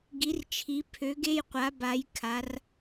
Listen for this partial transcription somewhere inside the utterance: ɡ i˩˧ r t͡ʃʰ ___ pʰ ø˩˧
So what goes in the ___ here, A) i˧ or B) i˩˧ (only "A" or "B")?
B